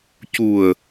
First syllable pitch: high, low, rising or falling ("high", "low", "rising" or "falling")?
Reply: low